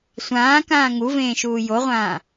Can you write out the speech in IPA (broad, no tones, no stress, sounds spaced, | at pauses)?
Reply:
sʷ ãː k ãː ŋ u v ẽː ʃ uː j o ʁʷ ãː